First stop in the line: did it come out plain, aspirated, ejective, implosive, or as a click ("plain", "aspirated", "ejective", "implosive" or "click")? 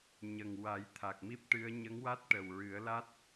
aspirated